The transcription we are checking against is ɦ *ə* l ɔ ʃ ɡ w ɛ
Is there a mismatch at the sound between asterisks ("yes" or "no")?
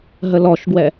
no